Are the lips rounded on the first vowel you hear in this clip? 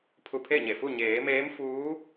yes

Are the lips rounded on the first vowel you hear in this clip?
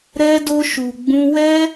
no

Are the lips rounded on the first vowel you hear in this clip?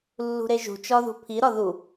yes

